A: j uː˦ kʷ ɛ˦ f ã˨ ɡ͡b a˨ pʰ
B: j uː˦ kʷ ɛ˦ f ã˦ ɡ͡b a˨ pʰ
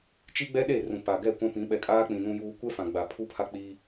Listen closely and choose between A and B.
A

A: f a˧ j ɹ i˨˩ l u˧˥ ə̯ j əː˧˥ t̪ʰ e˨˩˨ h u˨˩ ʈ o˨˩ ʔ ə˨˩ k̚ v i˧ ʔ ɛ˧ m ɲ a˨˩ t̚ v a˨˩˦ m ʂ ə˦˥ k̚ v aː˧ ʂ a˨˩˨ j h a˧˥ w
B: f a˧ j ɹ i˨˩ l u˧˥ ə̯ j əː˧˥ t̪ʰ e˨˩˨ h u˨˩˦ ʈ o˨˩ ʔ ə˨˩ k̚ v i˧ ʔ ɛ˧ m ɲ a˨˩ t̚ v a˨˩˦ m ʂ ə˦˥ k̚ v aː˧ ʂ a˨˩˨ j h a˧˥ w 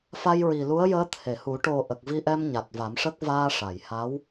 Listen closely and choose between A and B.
B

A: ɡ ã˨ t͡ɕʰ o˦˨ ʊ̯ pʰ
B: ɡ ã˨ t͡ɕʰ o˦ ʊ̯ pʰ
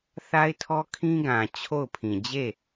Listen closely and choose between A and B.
A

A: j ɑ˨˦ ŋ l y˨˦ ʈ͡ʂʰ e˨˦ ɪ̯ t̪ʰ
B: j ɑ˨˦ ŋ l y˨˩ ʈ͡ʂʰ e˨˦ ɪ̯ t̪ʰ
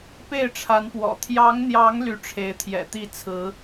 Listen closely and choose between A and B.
A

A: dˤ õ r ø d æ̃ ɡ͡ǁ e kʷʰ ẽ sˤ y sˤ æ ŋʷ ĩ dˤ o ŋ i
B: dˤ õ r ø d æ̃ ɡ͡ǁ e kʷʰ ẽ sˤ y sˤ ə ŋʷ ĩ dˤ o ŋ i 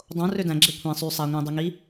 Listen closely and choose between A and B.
A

